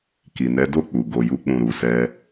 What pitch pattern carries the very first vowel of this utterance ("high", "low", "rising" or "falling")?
low